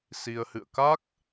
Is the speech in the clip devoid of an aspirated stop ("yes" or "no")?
yes